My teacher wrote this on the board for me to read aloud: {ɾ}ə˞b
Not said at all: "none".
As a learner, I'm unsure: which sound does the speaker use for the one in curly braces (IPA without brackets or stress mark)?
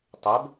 tˤ